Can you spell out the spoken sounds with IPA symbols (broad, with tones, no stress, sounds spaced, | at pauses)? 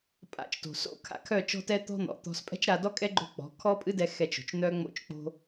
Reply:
pʼ a̰˧ t͡ʃ t o̤˨ s o̰˦ kʰ a̰˧ kʰ œ˦˨ t͡ʃ ɔ̤˦ t ɛ˦ t̪ ɔ̤˦ n̪ ɔ̰˨ t̪ ɔ̤˧ s pʼ ɛ̤˦ t͡ʃ ɾ a˧ d ɔ˦ kʼ ɛ˦ ɡ͡ǃ o̤˦ k͡p ɔ̤˨˦ kʰ ɔ˦ pʼ ɨ˦ d ɛ˧ x ɛ˧ t͡ʃ o̤˨ t͡ʃ n̪ œ˦ ŋ͡m o̰˦ t͡ʃ k͡p o̤˦